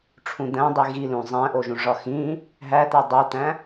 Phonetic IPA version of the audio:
ʈ͡ʂʰ ũ d̪ æ̃ dˤ i ɣ i l ũ zˤ æ̃ ʔ o ʒ ũ ʐ ɒ x ĩ | ɦ æ t̪ æ dˤ u t̪ æ̃

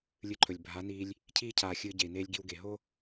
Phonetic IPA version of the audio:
lʲ ɨ˧ ǃʰ ɵ˨ lʲ bʱ a˨˦ n iː˧ lʲ | cʰ iː˦ cʰ aː˨ xʲ ɨː˧ ɟ e˨ i̯ n eː˧ lʲ ɡ i˧ w ɡ e˨ ɦ o˦

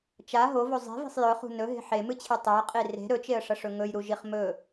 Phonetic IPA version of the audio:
t͡ʃ a ɦ o v o zˤ e̤ v e̤ sˤ j ɵ χ ṳ n ɵ ɦ e̤ ħ e m ɨ t͡ɕʰ ɨ tˤ o ə̯ qʼ i r e̤ ɾ ɵ t͡ʃ e ə̯ ʂ ɐ ʂ ɵ ŋ ɵ j ɾ u ʒ i χ m ɵ

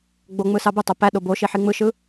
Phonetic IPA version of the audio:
ɡ͡b o ŋ͡m ɯ s ɑ b ɯ tˤ o p æ ɗ o b o ʃ i ħ i ŋ͡m ɯ ʃ ɯ

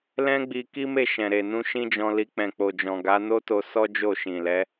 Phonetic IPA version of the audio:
l ɛ̃˦ ɡ͡b i˧ k i˦ m e˦˨ ʃ ɛ̃˨ ɾ e˨ n ũ˧ ʃ ĩ˦ d͡ʒ ɔ̃˧ l i˧ k͡p ɛ̃˨ k͡p o˨ d͡ʒ ɔ̃˨ ɡ a˨˦ n o˦ t o˧ s ɔ˦ d͡ʒ o˦˨ ʃ ĩ˨ l ɛ˨˦

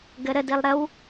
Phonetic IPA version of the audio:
ɡ ə ɾ ə d i lˠ ɾ ə w

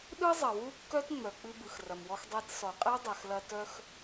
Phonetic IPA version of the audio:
ɗ ɯ˥ zˤ ɐ˩ w u˥ kː œ˥ t ŋ͡m œ˩ k͡p ɨ˧ b ɯ˩ x r ɐ˩ m w ɔ˧ x dˤ e˧ t s ɔ˩ qʼ ɛ˥ dˤ ɛ˩ x l ɐ˧ t œ˧ x

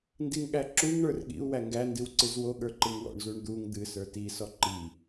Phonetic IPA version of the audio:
n d i ŋ ɠ æ ǁ u ŋ ɳ ə˞ r ɠ ḭ u̯ w æ ŋ ɡ æ n d ɨ w ǀ ɨ z w o ɠ ə˞ ǃ ɨ ŋ w ɔ̰ ɳ z u ɳ d̪ u ŋ d̪ ɨ s ə˞ t i s ɔ ǃ i

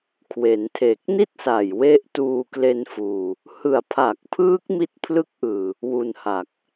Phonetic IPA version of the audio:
kʰ w e˩˦ n tʰ e˨˩ k̚ n i˥˩ t̚ s a˨˩ j w e˦˥ ʔ t uː˧ k l e˧ n f uː˨˩ | h ɯ˨˩ a̯ pʰ a˨˩ k̚ pʰ ɯː˦˥ k̚ m i˦˥ t̚ pʰ l ɯ˦˥ k̚ ʔ ɯː˨˩ | w u˧ n h a˨˩ k̚

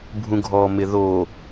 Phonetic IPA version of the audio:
bʱ ũ ɡʱ ɔ m ɪ ð o

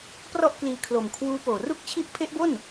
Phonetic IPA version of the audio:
p r ɔ˥˩ ʔ k l iː˧ kʰ l o˨˩ m kʰ w uː˦˥ p oː˨˩ r u˥˩ k̚ t͡ɕʰ i˦˥ ʔ pʰ e˦˥ ʔ b o˥˩ n

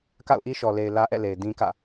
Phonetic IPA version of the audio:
k a̰˦˨ ʊ̯ ʔ i˦ ʃ ɔ˨ l e˨ ɪ̯ l ä˦ ʔ ɛ̰˦˨ l e˨ ɪ̯ d ĩ˦ k ä̰˦˨

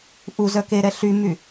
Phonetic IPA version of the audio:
ʔ u z œ k e ɾ ɛ ɬ y m y

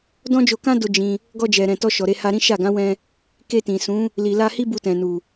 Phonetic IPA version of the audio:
d ɔ̃˦ d͡ʒ o˧ k ã˦ d o˧ d͡ʒ ĩ˧ | ɡ ɔ˧ d͡ʒ ɛ˨ ɾ ɛ̃˨ t ɔ˧ ʃ ɔ˨ ɾ e˧ h a˧ ɾ ĩ˦ ʃ a˦˨ ɡ ã˨˦ w ɛ̃˧ | k e˧ t ĩ˨ s ũ˨˦ | l i˨ l a˧ h i˦ b u˧ t ɛ̃˨ n u˨

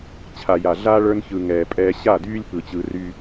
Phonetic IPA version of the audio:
t͡ɕʰ a˨ j a˨ ɮ aː˦ ɭ ə˞˧ n ç ɯ˨ ŋ ɛː˨ pʼ ɛː˧ ɕ a˦˨ d yː˦ lʲ p ɯ˨ t͡ɕ ɯ˧ r y˦

